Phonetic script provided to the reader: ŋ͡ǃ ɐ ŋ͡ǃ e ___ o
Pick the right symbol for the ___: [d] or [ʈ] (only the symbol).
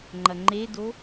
d